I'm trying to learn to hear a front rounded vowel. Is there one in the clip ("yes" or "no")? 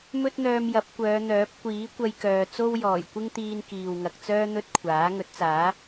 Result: yes